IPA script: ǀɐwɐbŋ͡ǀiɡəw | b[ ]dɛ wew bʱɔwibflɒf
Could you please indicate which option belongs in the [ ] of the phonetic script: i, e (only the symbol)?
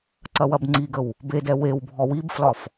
e